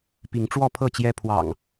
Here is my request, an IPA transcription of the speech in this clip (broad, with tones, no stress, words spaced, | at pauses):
pi˨˦ŋ ʈ͡ʂwɔ˥˨pʰɤ˥˨t͡ɕjɛ˦ pʰwɑ̰˨˩ŋ